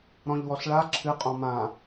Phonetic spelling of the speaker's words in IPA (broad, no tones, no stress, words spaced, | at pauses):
ɾɔ̃ʎwɔɬɭa ǁʰɨqʼɔ̃ mã